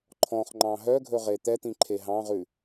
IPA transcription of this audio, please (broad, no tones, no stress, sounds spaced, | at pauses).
ǃʰ ɔ̃ χ ŋ͡ǃ ɑ̃ ɦ œ ɡʱ ɵ ʁ e t̪ ɛ t̪ ĩ ǃʰ e ɦ ɑ̃ ʁ ʉ